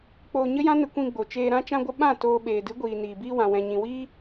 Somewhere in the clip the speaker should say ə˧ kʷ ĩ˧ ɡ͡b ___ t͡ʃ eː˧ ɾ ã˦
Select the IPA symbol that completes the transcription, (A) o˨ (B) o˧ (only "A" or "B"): A